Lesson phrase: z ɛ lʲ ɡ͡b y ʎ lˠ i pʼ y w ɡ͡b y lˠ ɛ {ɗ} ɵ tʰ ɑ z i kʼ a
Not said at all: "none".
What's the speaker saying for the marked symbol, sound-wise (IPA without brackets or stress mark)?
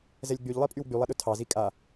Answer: ɗ